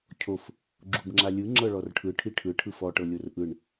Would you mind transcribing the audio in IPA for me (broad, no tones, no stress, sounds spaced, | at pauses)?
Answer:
cʰ o f | ɡ͡ǁ u b ŋ͡ǁ a lʲ ɯ ŋ͡ǁ ɤ ɭ ɔ r ʈʰ ɯ ʈʰ i ʈʰ ɯ ʈʰ ɯ f ɔ ʈ ɤ lʲ o r ʔ ɯ ɳ